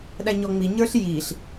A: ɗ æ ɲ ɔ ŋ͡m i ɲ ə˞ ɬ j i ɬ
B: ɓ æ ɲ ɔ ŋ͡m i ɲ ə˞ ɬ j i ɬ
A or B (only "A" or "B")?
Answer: A